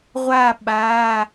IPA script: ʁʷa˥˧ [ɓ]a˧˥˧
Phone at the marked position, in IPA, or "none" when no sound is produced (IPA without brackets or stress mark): ɓ